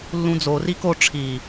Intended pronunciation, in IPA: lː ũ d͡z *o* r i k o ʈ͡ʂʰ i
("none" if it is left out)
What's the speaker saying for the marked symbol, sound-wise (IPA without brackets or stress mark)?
o